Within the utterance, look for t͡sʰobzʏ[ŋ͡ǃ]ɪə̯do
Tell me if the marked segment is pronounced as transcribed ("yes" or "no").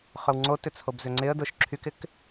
no